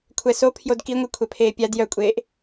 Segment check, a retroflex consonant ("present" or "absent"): absent